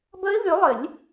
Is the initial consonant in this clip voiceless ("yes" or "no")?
no